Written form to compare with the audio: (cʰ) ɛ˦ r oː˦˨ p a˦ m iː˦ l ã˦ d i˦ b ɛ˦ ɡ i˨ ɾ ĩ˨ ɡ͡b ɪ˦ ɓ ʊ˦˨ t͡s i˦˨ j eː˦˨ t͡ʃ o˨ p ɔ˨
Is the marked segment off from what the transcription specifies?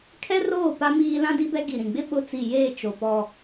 yes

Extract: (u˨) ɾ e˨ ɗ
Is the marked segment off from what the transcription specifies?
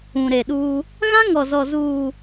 yes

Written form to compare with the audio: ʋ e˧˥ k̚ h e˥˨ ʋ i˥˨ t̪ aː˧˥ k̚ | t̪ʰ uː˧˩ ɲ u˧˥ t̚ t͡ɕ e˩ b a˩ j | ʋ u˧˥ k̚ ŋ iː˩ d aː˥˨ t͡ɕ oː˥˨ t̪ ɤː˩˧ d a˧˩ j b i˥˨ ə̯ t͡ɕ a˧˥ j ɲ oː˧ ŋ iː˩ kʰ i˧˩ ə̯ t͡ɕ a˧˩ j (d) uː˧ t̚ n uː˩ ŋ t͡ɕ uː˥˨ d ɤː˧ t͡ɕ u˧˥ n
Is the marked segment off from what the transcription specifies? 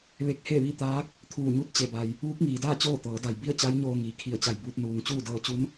yes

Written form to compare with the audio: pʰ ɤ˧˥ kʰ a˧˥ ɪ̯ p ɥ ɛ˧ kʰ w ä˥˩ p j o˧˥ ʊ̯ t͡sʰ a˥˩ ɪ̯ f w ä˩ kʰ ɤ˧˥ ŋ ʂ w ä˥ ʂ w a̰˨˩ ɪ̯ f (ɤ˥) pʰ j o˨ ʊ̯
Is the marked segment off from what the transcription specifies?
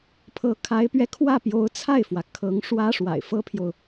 no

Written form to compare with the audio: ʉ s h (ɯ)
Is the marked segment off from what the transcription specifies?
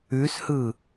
no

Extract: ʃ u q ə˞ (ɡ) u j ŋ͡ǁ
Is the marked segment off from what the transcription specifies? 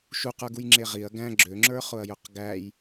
no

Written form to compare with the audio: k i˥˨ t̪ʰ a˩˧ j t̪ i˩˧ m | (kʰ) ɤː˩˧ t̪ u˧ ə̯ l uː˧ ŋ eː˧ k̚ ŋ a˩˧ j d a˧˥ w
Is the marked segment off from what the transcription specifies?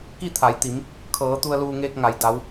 no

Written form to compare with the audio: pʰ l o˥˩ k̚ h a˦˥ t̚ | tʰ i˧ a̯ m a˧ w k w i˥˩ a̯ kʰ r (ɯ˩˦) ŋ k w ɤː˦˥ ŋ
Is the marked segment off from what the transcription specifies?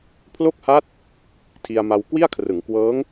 no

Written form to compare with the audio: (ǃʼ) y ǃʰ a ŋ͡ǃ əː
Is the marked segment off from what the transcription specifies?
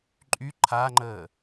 no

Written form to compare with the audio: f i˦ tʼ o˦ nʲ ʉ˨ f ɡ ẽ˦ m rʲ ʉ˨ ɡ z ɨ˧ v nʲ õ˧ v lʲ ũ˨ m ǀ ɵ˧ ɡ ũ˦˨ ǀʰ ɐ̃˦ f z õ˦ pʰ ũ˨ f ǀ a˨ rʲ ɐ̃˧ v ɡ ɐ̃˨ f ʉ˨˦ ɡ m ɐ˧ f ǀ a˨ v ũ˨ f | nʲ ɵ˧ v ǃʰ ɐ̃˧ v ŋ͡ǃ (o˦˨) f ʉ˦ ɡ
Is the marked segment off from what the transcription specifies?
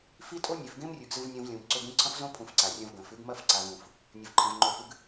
no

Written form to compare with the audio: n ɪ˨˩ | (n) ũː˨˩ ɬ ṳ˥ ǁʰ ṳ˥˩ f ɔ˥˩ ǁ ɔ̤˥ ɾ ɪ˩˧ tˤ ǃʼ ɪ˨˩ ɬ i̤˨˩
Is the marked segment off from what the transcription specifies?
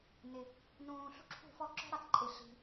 no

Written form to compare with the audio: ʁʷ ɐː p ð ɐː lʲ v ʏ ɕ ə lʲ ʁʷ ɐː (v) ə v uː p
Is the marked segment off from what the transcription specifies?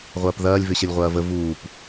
no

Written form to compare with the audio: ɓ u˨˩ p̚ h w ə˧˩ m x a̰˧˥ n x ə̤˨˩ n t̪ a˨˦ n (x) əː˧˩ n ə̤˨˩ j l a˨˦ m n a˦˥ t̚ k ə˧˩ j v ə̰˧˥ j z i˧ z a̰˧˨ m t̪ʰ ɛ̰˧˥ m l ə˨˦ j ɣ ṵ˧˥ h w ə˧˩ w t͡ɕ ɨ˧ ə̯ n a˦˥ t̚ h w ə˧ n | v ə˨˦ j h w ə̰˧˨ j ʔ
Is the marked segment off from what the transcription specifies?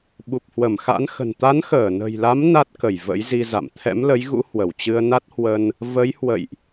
no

